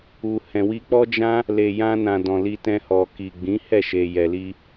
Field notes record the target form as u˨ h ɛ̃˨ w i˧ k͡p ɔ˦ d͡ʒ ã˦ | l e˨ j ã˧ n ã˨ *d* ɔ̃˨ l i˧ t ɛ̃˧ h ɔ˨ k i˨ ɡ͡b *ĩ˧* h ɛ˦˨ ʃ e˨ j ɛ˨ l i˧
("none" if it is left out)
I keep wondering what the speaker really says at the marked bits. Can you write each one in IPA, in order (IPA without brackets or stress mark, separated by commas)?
d, ĩ˨˦